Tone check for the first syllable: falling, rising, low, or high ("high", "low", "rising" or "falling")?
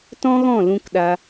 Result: high